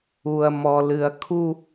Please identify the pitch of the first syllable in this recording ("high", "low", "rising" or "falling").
low